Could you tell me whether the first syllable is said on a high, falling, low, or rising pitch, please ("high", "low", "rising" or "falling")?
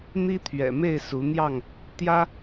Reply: high